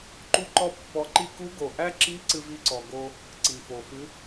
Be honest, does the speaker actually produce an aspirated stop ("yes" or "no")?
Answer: no